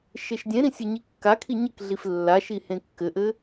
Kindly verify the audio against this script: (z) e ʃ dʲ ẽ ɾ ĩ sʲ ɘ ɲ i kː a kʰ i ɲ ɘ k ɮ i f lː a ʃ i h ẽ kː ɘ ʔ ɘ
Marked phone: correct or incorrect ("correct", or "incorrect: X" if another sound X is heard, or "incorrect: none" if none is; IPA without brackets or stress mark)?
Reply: incorrect: ʃ